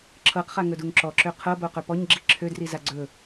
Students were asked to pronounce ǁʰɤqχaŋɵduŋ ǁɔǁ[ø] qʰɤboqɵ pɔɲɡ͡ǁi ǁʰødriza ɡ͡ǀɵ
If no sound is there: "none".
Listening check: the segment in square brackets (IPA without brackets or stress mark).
ø